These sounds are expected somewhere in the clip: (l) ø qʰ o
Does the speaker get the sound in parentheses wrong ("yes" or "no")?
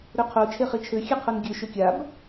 yes